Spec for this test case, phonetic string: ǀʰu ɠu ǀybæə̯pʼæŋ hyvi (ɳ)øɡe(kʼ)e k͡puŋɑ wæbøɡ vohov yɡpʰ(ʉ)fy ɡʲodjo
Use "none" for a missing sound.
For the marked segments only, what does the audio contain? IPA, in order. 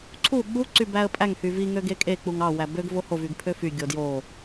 ŋ, kʼ, ø

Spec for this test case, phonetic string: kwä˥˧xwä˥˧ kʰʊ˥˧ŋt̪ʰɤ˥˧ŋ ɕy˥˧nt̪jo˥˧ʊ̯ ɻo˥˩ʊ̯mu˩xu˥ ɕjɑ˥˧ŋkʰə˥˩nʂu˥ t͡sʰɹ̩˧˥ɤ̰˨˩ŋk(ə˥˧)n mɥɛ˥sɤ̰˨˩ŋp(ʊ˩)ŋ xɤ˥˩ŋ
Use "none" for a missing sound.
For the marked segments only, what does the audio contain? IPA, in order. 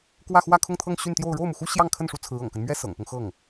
ə˦, ʊ˦

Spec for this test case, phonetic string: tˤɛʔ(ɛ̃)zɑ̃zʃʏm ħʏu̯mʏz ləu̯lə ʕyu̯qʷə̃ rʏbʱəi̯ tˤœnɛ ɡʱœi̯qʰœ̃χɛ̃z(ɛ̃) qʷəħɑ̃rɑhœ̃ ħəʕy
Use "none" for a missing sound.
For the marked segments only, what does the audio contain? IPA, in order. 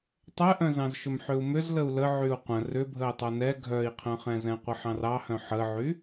œ̃, ɛ̃

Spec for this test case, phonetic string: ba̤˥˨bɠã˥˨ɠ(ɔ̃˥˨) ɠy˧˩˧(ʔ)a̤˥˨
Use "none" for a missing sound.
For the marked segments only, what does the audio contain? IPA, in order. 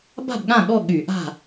ɔ˥˨, ʔ

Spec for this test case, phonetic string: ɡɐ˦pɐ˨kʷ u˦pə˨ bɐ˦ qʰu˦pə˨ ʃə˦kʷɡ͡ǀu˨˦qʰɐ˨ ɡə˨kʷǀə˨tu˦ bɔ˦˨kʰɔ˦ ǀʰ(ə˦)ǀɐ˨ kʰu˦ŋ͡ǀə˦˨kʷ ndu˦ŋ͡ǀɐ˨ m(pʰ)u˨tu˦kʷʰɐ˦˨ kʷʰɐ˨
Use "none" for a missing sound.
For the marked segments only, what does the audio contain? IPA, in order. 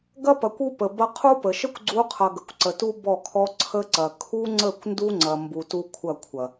ə˦, b

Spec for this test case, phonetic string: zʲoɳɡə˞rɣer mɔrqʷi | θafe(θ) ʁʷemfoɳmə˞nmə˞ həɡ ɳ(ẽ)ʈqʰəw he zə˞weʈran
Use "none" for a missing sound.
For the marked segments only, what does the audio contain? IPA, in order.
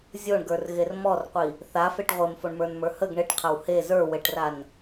ʈ, e

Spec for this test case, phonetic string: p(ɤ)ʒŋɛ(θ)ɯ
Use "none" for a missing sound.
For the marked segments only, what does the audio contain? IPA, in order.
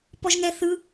ɔ, θ

